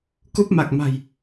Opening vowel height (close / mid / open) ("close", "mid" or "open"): close